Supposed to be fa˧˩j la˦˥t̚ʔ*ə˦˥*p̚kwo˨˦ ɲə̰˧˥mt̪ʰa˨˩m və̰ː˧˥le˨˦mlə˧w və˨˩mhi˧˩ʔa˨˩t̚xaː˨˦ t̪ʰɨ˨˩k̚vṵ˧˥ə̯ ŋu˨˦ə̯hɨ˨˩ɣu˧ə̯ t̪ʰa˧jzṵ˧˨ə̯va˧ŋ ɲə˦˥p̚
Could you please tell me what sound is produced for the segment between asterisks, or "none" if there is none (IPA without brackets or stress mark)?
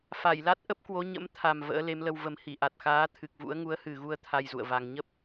ə˦˥